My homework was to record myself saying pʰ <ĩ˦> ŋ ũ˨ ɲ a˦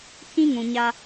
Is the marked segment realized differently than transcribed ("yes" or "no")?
no